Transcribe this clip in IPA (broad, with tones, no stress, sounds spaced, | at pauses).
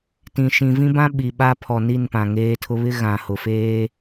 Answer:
t ĩ˨ ʃ ĩ˨ v ĩ˦ b ã˦ ɓ i˨ ɓ a˦ pʰ ɔ˨ n i˦˨ n p ã˨ ŋ eː˦ tʰ ʊ˦ β ɪ˦ ɣ ã˨ h ʊ˨ f eː˦